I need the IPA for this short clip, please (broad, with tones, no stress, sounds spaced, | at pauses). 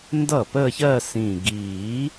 n d ʌ˥˩ p ə˥˧ ç ɜ˥˧ s ĩ˨˩ ɡ iː˨˩˦